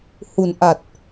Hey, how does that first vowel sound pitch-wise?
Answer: low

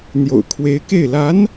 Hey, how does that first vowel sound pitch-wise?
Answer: low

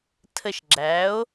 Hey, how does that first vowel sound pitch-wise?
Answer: falling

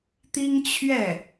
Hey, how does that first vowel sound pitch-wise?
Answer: high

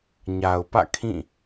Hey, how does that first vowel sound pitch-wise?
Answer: low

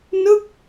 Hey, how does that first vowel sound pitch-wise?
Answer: falling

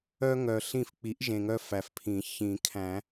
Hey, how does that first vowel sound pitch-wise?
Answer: high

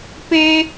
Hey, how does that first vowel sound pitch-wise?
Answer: high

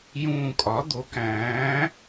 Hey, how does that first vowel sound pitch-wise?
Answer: falling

